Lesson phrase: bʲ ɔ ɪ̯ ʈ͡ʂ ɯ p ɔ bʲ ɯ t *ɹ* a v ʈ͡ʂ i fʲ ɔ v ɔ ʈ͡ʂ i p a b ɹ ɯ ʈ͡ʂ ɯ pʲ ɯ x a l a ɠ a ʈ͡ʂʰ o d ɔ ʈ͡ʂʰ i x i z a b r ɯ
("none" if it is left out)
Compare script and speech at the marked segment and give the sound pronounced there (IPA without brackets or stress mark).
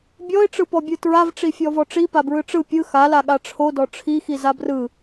ɹ